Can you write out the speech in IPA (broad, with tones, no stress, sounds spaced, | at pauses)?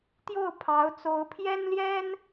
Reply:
t̪ j o˥˩ ʊ̯ pʰ ɑ˧˥ ʊ̯ t͡s o˧˥ ʊ̯ pʰ j ɛ˥ n l j ɛ˥ n